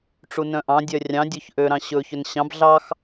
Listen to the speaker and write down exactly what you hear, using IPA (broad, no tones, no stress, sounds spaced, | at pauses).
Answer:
ʈ͡ʂ u n œ̃ ʔ ɑ̃ dʲ œ rʲ ɑ̃ dʲ ɵ ç ʔ ø ɾ ɑ̃ ɕ ɵ ç ɵ n ɕ ɑ̃ b ɮ ɑ x